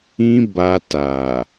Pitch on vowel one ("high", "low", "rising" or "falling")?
high